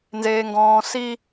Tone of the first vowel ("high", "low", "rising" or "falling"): low